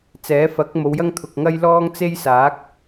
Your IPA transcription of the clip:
t͡s ɛː˨˥ f ɐ˨˥ k̚ m o˨˧ w j ɐ˥ ŋ t̪ʰ ʊ˨ k̚ ŋ ɐ˥ j l ɔː˥ ŋ t͡s e˥ j s aː˨˥ k̚

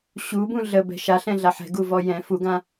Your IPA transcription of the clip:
ɕ u b ũ ɮ ə b ɛ̤ ʃ a ɬ ɛ̃ ɮ a ħ ɛ̤ ɡ u v ɔ j ɛ̃ f u ɡ ã

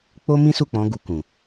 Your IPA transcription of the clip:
k͡p o˦ m ĩ˦ s u˦˨ k͡p ɔ̃˨˦ ɡ u˧ k ũ˨

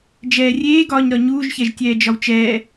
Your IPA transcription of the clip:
d͡ʒ ɛː rʲ eː ɡ ɒː ɲ ɾ ɒ ɲ uː ʒ ç ɛ ʒ tʲ ɛː d͡ʒ ɒ w t͡ʃ ɛː

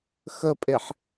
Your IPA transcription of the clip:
x ə pʼ e ħ

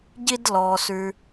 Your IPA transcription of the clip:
ɟ i˧ d l ɔ˩ s ʉ˩

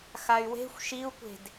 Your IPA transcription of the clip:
x a y̯ w e̤ xʷ ʃ i u̯ kʷ e̤ d

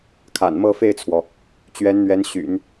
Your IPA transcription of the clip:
kʰ a̰˨˩ n m ɤ˥˧ f e˥˩ ɪ̯ t͡sʰ w ɔ˩ | t͡ɕ ɥ ɛ˧˥ n n̪ ɥ ɛ˧˥ n ɕ y̰˨˩˦ n

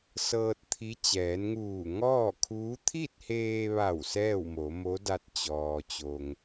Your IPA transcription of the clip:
s ɤː˧ t̚ t̪ʰ i˧˥ t͡ɕ ɛː˩˧ n ŋ uː˧˩ ŋ ɔː˥˨ kʰ uː˧˥ t̪ʰ i˥˨ t̚ h eː˧ ʋ a˧˩ w s ɛː˥˨ w m o˩˧ m o˧˥ d a˧ t̚ t͡ɕ ɔː˩ t͡ɕ o˩ ŋ

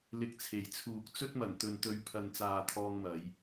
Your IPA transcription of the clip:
l ɪ˨ k̚ t͡sʰ e˨˩ j t͡sʰ uː˨ k̚ t͡s ɵ˥ t̚ m ɐ˨˩ n t̪ ɵ˨ n t̪ ɵ˨˧ ɥ pʰ ɐ˨ n t͡s aː˨ t̪ʰ ɔː˧ ŋ m ɐ˨˧ j

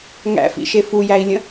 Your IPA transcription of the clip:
ŋ æ̰ f ḭ ʃ e f u j æ i̯ lʲ ə̃

